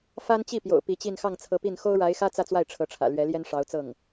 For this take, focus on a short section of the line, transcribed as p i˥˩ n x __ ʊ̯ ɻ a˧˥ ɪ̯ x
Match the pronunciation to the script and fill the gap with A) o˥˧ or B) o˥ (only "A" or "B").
B